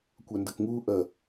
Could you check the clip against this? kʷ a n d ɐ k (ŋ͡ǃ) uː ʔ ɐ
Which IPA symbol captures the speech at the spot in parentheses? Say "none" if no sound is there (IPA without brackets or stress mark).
ŋ